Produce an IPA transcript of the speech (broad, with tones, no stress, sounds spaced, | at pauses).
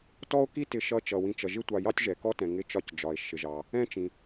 t ɔ˥ o̯ k i˥ t ɪ˨ ʃ ʌ˦ t͡ʃ ʌ˩ w ĩ˨ t͡ʃ ʌ˩ ʒ ɪ˦ tʷ ɑ˨ j ɑ˥ tʲ ʒ ɛ˩ k ɔ˦ t ɛ̃˩ ŋ ɪ˨ t͡ʃ ɒ˨ c d͡ʒ ɒ˩ e̯ ʃ ɪ˩ ʒ ɑ˩ | ɛ̃˥ t͡ʃ ĩ˩